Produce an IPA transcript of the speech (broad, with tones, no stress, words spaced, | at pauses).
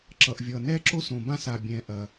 ǁʌ˨ʔvʲʌ˨ nɛ˦ǁo˦sõ˨bã˦s a˨bʲɛ̃˨ʔɐ˨